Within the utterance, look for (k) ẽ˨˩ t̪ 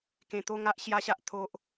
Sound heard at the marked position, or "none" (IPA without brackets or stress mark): k